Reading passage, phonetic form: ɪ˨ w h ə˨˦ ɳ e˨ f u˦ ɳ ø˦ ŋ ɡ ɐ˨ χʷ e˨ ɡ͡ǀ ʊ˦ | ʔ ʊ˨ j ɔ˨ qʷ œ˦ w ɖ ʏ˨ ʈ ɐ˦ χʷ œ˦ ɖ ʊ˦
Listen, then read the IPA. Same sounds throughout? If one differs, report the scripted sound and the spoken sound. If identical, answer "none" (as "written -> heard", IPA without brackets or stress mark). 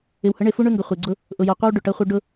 none